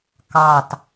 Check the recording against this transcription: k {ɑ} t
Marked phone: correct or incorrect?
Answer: correct